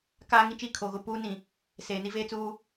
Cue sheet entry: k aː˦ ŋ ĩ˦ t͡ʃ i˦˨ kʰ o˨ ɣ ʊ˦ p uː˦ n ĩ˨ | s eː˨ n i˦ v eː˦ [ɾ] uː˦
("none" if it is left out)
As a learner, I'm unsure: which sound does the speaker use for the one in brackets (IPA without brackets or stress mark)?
t͡s